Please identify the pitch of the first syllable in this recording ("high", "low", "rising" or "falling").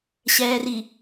low